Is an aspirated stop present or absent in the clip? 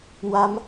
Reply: absent